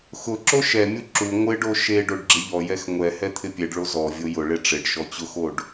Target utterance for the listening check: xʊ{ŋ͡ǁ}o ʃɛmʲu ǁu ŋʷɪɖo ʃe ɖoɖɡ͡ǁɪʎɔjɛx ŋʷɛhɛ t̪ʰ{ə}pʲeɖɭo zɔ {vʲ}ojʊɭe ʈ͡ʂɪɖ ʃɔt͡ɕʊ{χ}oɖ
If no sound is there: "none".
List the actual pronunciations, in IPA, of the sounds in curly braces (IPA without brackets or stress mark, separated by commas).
ǁ, ɪ, vʲ, x